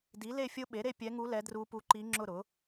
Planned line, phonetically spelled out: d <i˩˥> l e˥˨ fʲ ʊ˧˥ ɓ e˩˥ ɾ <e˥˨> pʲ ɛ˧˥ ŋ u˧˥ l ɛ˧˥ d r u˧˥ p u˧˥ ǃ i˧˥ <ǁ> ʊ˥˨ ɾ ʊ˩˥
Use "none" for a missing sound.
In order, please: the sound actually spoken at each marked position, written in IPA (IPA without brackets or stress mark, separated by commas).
i˩˥, e˥˨, ŋ͡ǁ